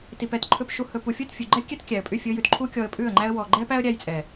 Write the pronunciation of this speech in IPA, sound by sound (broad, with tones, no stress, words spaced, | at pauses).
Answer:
ti˨pɛ˧tǃʰɵ˧p ʃu˨hɵ˨ pu˨fʲɵ˦˨tfʲʉ˨ɡ͡ǃɛ˦ kʲɛ˦tkʲæ˨ə̯pʼy˦˨ fʲɵ˧jʉ˨t ǃʰu˦kʲɔ˧ə̯pʼʉ˦˨ə̯ŋ͡ǃæ˦ə̯ wɔ˨ɡ͡ǃɛ˦pæ˦ə̯ ɾʲæ˦jt͡sʼɛ˨